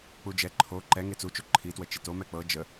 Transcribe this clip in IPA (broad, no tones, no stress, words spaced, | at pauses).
k͡pud͡ʒɛ ǃʰo ǃɛ ŋet͡sut͡ʃu ǃʰitwə t͡ʃito mɛk͡pɤ d͡ʒə